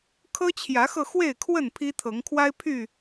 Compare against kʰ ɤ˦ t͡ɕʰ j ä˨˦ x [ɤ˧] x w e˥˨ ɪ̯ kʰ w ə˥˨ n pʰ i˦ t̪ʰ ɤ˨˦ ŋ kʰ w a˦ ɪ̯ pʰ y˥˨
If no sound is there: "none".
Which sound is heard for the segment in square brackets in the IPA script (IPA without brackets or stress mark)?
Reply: ɤ˧